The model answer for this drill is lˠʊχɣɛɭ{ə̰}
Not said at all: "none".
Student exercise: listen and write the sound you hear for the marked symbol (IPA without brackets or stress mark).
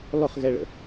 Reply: ə̰